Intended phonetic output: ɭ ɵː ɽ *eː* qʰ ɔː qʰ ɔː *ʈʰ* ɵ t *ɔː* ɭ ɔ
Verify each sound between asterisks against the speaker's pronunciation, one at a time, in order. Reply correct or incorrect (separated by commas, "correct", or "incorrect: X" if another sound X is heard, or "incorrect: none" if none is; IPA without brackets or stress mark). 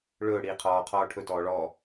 incorrect: iː, correct, correct